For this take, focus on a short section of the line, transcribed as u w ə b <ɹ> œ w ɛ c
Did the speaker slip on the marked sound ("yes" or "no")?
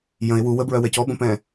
no